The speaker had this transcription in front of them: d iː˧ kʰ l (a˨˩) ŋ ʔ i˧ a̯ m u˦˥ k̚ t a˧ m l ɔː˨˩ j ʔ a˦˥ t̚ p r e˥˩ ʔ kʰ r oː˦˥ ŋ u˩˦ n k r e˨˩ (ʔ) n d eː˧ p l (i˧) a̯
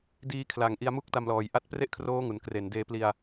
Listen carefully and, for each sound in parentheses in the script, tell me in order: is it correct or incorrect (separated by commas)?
correct, incorrect, correct